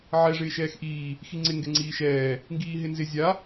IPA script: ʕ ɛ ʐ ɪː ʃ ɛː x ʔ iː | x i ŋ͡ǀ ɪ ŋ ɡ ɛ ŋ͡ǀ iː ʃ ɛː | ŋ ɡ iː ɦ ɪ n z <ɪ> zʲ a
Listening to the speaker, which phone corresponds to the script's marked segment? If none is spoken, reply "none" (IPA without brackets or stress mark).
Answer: ɪ